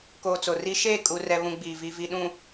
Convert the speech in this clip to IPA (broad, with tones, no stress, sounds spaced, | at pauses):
k oː˨ t͡s o˨ r i˦ ʃ eː˦˨ kʼ u˨ r ɛ˨ β ũ˨ ɡ͡b i˨ v i˨ v i˨ ɗ ũ˨